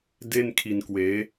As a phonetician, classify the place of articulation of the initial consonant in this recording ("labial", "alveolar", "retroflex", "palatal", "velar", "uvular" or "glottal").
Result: alveolar